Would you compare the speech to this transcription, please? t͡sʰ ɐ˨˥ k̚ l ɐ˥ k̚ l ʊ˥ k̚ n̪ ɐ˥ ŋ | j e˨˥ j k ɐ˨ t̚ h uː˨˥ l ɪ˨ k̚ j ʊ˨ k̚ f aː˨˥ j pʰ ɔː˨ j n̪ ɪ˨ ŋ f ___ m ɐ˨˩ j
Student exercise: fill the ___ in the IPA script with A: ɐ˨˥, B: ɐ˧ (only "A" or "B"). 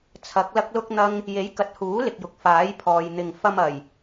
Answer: B